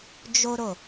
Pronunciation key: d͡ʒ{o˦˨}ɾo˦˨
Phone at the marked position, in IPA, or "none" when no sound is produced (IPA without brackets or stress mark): o˦